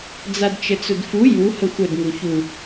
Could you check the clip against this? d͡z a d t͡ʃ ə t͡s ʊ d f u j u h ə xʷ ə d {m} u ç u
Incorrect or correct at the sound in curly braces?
incorrect: ŋ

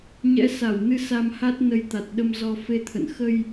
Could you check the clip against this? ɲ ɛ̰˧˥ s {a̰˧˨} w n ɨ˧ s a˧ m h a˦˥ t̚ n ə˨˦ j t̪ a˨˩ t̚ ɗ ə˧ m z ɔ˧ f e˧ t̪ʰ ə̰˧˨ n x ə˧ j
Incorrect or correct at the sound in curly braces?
incorrect: a˧˩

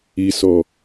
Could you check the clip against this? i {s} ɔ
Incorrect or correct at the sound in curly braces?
correct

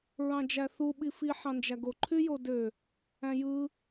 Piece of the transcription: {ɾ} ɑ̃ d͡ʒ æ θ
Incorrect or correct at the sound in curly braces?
incorrect: ɹ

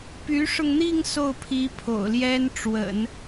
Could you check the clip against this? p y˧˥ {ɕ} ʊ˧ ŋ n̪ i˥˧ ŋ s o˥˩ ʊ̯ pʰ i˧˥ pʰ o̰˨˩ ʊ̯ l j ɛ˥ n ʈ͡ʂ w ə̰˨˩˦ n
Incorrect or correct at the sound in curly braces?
incorrect: ʂ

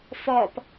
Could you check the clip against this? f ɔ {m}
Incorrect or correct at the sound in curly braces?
incorrect: p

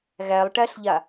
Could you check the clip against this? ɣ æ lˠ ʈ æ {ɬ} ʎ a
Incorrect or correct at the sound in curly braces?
correct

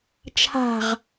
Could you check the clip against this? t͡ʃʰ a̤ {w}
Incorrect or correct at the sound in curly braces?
incorrect: ʁ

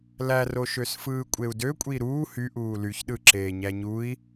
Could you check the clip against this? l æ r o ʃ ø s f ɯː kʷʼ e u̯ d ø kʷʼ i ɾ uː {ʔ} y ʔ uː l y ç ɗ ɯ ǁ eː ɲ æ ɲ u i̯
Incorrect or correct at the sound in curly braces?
incorrect: h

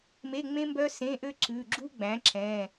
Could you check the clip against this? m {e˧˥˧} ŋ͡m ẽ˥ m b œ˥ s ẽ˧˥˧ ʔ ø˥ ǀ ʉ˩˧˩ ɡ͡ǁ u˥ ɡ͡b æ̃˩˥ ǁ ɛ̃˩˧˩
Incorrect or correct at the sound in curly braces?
correct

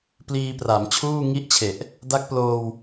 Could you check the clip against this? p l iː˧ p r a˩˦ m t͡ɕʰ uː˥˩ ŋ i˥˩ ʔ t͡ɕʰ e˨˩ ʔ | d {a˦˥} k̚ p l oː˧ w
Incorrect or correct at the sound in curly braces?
correct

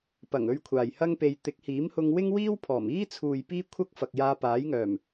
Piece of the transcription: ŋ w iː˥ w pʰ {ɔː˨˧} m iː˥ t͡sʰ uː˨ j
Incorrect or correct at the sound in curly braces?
incorrect: ɔː˨˩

